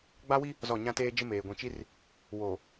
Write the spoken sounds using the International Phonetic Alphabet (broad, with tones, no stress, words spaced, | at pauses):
ɡ͡ba˦wi˦ | zɔ˦˨ ɲã˦teː˦ d͡ʒɪ˦meː˨ɡʷĩ˨t͡ʃi˦r | woː˨